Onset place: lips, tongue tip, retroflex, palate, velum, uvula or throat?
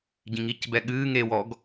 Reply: palate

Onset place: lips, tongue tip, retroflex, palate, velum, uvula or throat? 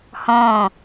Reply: throat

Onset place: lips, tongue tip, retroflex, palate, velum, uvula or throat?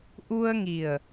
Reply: throat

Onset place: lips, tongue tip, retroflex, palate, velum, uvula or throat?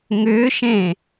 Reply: velum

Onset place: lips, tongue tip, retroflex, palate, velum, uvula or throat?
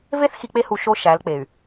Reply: lips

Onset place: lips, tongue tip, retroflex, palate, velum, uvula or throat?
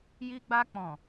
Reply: palate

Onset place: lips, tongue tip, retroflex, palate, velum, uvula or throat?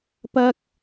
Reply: lips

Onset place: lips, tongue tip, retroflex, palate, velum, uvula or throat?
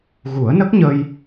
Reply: velum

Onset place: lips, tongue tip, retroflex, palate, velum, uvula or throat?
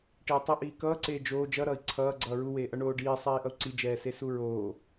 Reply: retroflex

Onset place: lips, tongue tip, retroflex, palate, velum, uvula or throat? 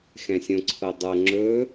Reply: velum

